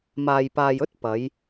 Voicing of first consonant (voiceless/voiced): voiced